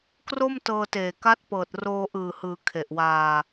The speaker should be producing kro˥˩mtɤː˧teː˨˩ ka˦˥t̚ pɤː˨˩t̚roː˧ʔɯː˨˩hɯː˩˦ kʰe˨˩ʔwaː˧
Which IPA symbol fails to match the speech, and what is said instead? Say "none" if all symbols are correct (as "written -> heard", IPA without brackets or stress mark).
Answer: none